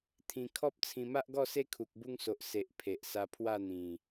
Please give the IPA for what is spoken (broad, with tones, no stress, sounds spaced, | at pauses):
t̪ʰ ĩ˨˩ kʰ ɔ˦ p̚ t͡sʰ ĩ˧ m a˦ ʔ ɡ ɔ˥˧ s e˦ kʰ u˨ k̚ b u˧ ŋ s o˨ ʔ s e˨ ʔ pʰ e˨ ʔ s a˧ pʰ w a˥˧ n̪ ĩ˨˩